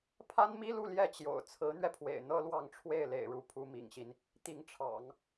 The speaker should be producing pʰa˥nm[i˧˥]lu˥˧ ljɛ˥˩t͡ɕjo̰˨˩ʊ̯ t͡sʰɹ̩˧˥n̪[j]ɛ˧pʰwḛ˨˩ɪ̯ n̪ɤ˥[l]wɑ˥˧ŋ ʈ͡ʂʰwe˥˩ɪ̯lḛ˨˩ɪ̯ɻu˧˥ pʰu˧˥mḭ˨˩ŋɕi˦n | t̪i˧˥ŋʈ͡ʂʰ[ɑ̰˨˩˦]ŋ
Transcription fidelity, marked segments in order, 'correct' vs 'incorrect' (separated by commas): incorrect, incorrect, correct, correct